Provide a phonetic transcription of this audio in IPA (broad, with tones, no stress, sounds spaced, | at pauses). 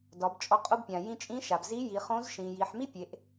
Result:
d ɒ˩˧ b t͡ʃʼ ɔ˧˥ qʼ o˥ b pʲ ã˩ j ĩ˧ t͡ʃʼ ĩ˧˥ ʃ a˩ b z i˧˥ j i˩˧ χ õ˧˥ z ʃ ĩ˩ j i˩˧ ħ m i˥ pʲ e˩˧ ʔ